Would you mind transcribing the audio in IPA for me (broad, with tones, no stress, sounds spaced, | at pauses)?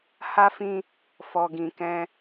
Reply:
h a˦ f ĩ˦ | f ɔ˧ ɡ ĩ˧ k ɛ̃˦